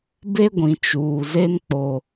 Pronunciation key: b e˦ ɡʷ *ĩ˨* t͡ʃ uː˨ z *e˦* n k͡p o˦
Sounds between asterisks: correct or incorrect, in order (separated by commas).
correct, correct